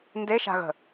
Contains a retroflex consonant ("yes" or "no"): no